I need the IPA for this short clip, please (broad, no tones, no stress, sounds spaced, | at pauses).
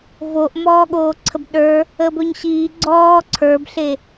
v o ʔ m ɔː ɠ oː ǀʰ ə b ɗ ə˞ | əː b ɵ ɲ ɕ iː ɡ͡ǀ ɔː ǀʰ ə˞ b ɬ e